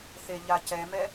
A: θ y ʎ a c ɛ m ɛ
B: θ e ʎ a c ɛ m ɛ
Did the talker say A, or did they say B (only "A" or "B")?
B